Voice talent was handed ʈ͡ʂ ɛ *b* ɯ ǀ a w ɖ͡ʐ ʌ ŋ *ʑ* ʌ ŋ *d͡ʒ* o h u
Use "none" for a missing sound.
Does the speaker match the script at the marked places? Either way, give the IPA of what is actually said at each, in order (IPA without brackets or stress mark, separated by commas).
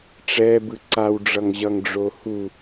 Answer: b, ʑ, ɖ͡ʐ